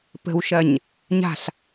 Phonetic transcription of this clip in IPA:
p ə̤ w ʃ ɐ ɲ | ɲ a̤ ɬ

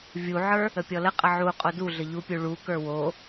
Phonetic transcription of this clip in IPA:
vʲ u ʕ ə˞ | ə pʲ ɔ l ə qʼ ə ʕ u qʼ o d u ɮ ə ʎ u pʲ u ɭ u k ə˞ w o

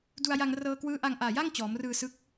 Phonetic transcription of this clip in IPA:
d u˧ a̯ j a˧ ŋ r ɤː˧ k w ɯː˦˥ ʔ a˧ ŋ ʔ aː˨˩ j a˥˩ ŋ t͡ɕ ɔː˩˦ m r ɯː˧ s ɯ˦˥ k̚

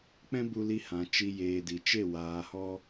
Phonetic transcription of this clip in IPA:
k͡p ɛ̃˦ b u˧ l i˧ h ã˨ t͡ʃ i˨ j eː˨ d i˨ t͡ʃ e˦˨ w aː˨ h ɔ˧

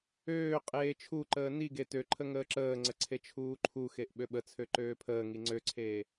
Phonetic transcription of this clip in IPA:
øː qʼ eː t͡ʃʰ u ǃ əː n i ɡ e t ø ǃʰ ə ŋ əː ǁ əː ŋ͡ǀ ə ǀʰ e t͡ʃʰ uː ǃʰ u x e ʔ ɓ ø ɓ ə t͡sʰ ø ǃ øː pʰ əː ŋ i ŋ͡ǀ ø ǀʰ eː

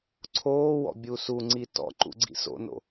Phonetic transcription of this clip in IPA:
ǀʰ oː w ɔ̰ bʲ u s u ŋ͡ǀ i t ɔ̰ ǃ ṵ ɡ͡ǀ ḭ s o̰ n o̰

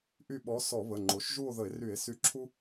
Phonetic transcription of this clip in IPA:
ʔ y˦˨ ɓ ɔ˨˥ s ɔ˧˩˧ β ə˩˧˩ ŋ͡ǃ o˩˧ ʃ ʒ u˦˨ o̯ ð ə˧˩˧ e̯ r y˧˩˧ e̯ s y˨˥ ǁʰ u˦

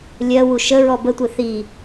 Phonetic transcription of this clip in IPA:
lʲ ɜ w u ʃ ə ɹ ɔ b ə tʷ e θ i

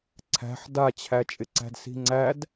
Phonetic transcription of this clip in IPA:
ǀʰ æ̤ ħ d a t͡ɕʰ æ t͡ʃʼ ɪ ǀ æ̤ d s i̤ ŋ͡ǀ æ d

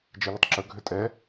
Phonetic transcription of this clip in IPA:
d͡ʒ e l ʏ tˤ ǁ ɵ ɡʱ ʏ tʼ ɛ

